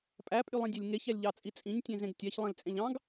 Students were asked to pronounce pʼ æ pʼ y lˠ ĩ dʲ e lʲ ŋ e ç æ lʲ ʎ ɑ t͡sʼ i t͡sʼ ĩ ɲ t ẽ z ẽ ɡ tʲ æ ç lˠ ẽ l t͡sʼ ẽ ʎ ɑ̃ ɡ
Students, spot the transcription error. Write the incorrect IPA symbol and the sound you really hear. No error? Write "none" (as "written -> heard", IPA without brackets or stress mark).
t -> tʲ